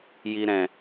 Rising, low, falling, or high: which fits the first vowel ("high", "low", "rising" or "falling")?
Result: low